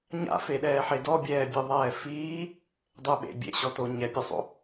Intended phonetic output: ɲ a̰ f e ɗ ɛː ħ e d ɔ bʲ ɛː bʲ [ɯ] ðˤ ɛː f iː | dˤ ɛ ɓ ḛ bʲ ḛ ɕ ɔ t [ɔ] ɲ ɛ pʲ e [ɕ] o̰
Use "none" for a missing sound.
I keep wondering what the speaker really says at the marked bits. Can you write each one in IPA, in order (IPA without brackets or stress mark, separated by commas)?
ɯ, o, sˤ